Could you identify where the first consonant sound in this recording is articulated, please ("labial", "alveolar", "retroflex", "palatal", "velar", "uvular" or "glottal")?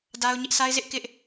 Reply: alveolar